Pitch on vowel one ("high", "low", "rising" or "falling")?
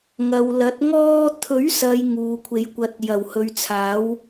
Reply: low